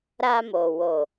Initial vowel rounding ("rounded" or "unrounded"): unrounded